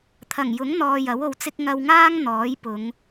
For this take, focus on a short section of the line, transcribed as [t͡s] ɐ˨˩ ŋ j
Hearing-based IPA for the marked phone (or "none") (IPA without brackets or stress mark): t̪ʰ